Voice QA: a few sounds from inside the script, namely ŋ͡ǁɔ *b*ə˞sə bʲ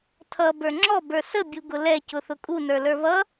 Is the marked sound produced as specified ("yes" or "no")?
yes